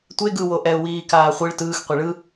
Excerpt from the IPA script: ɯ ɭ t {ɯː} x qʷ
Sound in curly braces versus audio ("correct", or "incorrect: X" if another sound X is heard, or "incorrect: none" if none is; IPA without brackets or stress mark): correct